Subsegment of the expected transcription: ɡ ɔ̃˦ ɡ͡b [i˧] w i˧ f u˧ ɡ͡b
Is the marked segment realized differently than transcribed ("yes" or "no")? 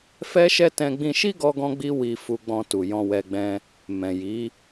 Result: yes